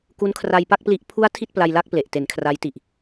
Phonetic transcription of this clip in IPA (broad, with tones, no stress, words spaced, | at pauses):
ku˦˥nkʰra˧jpa˥˩k̚pli˦˥ʔ pʰu˦˥a̯ tʰi˥˩t̚pla˧jla˥˩k̚ ple˨˩ʔte˩˦nkʰra˦˥jti˨˩ʔ